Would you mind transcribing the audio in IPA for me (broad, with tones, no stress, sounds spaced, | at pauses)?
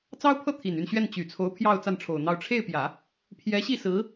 t͡s ɑ˥ ʊ̯ pʰ ɤ˥˩ t̪ʰ i˨˩ n y˥˧ n ɕ ɥ ɛ˥˩ n t͡ɕ y˨˩ t͡sʰ o˧˥ ʊ̯ pʰ j ɑ˥˧ ʊ̯ t͡s a˥˩ n ʈ͡ʂʰ o˨˩ ʊ̯ n̪ ɑ˥˧ ʊ̯ ʈ͡ʂʰ e˥˩ ɪ̯ p j ä˨˩˦ | pʰ j ɛ˧˥ ɕ i˥˩ s ɹ̩˧˥